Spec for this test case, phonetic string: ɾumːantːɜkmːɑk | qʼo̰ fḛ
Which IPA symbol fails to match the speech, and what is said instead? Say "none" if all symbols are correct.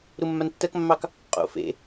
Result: none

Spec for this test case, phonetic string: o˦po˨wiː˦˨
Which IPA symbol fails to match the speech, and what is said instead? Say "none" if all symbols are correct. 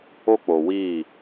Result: p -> k͡p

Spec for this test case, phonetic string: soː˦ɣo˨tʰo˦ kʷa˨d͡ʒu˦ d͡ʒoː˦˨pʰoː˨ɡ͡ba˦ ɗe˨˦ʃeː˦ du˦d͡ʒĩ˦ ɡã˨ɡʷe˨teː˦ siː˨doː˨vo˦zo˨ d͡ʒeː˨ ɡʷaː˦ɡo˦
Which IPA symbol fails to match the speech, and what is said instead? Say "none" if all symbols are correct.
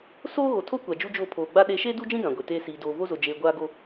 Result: none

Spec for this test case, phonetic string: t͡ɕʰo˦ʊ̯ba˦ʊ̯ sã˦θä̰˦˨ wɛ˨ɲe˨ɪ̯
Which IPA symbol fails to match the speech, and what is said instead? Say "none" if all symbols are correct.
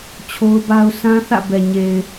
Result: w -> b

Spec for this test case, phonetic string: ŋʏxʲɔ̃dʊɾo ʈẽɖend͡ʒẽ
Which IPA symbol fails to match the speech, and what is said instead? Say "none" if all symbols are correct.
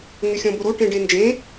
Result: d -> b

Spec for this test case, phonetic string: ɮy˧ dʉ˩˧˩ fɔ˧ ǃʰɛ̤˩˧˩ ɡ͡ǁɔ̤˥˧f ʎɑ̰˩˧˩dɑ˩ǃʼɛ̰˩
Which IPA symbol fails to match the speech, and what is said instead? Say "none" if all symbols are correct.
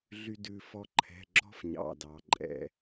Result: ʎ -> ɲ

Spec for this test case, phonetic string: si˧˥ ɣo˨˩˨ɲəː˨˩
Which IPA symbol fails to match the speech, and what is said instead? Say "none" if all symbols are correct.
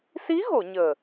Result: none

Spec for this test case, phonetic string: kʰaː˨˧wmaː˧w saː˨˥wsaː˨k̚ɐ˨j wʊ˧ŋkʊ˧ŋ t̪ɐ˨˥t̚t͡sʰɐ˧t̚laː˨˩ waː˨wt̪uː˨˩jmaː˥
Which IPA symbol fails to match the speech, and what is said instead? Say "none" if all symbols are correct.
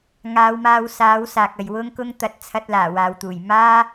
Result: kʰ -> ŋ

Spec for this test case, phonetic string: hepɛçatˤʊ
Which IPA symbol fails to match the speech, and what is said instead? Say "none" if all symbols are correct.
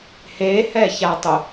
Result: p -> h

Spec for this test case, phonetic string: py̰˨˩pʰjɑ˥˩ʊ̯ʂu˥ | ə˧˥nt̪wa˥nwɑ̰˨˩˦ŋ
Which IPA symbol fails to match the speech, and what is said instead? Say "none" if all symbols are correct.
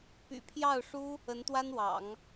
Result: none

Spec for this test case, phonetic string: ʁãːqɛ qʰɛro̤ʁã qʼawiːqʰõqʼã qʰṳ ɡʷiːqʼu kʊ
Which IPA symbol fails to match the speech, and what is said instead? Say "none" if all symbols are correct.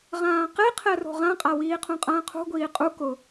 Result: none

